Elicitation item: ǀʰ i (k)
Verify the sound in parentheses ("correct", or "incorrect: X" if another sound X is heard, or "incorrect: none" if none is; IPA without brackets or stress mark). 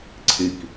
correct